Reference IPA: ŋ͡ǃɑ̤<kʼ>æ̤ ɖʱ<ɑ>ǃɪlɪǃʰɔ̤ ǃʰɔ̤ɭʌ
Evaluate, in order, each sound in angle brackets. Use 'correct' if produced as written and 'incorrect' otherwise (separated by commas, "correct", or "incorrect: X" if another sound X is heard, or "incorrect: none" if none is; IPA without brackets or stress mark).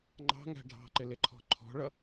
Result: incorrect: ŋ, incorrect: ɑ̤